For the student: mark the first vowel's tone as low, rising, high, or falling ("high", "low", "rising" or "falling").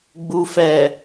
low